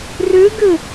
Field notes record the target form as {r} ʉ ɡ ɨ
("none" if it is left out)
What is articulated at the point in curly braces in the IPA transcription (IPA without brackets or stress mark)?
r